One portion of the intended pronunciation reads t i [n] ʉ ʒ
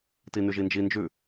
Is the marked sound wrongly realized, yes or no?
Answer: no